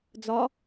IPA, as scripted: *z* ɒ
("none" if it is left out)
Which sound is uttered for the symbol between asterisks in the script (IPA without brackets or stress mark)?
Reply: d͡z